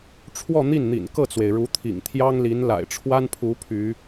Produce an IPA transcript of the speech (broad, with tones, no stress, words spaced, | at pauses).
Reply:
ʈ͡ʂʰwɔ˥˧n̪i˥˩nn̪ḭ˨˩n kɤ˥˩t͡swe˩ɪ̯ɻu˧˥t̪ʰḭ˨˩ŋ t̪ʰjɑ˥ŋli˧˥n la̰˨˩ɪ̯ʈ͡ʂʰwa˥npʰu˧˥ pʰy˧˥